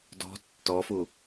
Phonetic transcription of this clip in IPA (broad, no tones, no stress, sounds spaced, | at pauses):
d ɔ̤ tː ɔ f u